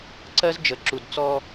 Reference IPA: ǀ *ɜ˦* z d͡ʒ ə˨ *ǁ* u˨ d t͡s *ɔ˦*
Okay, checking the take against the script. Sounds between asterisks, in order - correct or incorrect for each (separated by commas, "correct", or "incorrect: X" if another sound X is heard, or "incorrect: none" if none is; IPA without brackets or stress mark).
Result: correct, correct, correct